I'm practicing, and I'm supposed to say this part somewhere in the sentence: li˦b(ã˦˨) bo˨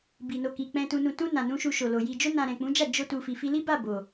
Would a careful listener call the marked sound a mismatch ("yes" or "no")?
yes